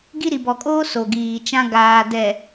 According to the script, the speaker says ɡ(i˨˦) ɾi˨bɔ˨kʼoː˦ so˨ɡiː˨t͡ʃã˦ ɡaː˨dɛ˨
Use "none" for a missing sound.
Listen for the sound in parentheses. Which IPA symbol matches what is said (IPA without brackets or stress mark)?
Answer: i˦